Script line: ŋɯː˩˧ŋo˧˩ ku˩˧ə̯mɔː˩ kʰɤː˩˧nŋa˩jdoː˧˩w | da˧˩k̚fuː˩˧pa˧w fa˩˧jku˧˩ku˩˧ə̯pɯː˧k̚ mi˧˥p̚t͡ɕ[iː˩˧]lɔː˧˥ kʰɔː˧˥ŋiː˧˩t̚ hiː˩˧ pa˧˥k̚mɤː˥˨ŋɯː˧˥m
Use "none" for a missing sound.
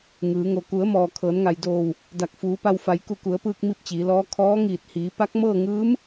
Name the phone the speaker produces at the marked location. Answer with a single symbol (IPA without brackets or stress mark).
iː˩˧